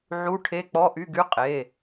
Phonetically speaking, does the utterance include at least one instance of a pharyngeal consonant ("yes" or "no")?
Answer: yes